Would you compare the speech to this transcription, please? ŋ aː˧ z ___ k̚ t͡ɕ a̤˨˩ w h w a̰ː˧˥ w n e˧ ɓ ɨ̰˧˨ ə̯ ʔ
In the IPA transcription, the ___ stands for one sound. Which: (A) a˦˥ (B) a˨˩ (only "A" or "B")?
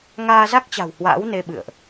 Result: A